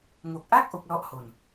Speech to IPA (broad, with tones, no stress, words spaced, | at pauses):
ŋo˨˩k̚ʔa˥˩k̚ ʔo˦˥k̚ lɔ˥˩ʔho˧n